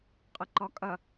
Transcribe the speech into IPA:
qʼ ə ǃ ɒ kʼ ɐ

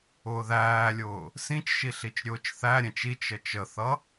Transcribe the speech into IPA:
ʊː ð æː lʲ ʊː | s ĩ t͡ʃ ʃ i ɬ i t͡ʃ ɾʲ ʊː t͡ʃ θ æ ɾʲ ɛ̃ t͡ʃ i t͡ʃ ə t͡ʃ ə θ ʌ

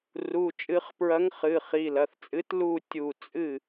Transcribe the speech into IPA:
r u˩˧˩ t͡ʃʼ ɨ˨˩˦ χ p ɹ ɐ˨˥ ŋ χ ɨ˩˧˩ χ i˩˧˩ l ɐ˩˧˩ θ t͡sʼ ɨ˨˥ t l u˧˩ tʲ u˧˩ t͡sʼ ɨ˥˨

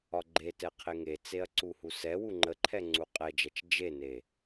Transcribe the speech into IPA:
ɒ ɡ͡ǃ e t ɛ qʰ e ŋ e t͡s e ɐ̯ ǀ u h u s ɛ w u ŋ͡ǃ ə ǃʰ ɛ ŋ͡ǀ u qʼ ɛ d͡ʒ ɛ t͡ʃ d͡ʒ e n e

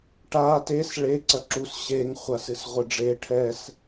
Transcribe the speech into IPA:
ʈ a t e s ɭ e ǀ ɐ ǁ u s ɕ e ŋ χʷ a s ɨ s ʁʷ ɨ ɖ͡ʐ e ʈʰ ɛ s

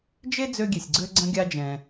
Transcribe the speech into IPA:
d͡ʒ e˥ d͡z ø˥ ɡʲ e˧ sʲ ɡ͡ǀ ø˥ ɡ͡ǀ ə̃˥ ɡʲ a˥ d͡ʒ ɛ̃ː˧

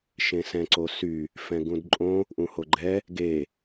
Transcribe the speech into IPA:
ʃ ẽ s ɛ̃ ǀ o s y | f ɛ̃ ɡ ũ d ǃʼ õ | ʔ ũ h o ɡ͡ǃ ɛ | ɡ e

